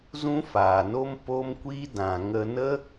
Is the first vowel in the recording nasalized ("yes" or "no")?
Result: yes